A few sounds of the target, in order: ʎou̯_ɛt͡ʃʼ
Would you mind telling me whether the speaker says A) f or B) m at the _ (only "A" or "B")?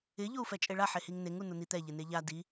A